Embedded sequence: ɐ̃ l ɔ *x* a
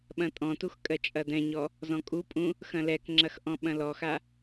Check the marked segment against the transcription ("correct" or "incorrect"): correct